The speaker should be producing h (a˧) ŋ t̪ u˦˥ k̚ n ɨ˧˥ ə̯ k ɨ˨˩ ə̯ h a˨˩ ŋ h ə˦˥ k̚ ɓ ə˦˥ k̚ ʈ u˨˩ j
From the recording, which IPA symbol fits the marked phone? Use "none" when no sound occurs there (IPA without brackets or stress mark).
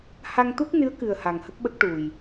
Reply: a˧